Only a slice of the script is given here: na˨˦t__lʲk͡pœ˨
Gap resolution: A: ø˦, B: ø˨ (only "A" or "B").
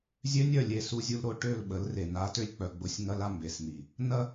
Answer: A